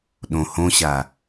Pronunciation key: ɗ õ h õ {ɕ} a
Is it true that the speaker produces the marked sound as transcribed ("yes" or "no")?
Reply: yes